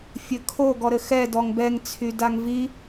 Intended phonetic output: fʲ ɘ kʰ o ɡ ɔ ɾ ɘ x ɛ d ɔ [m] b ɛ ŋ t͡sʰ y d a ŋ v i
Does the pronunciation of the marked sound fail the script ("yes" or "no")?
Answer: yes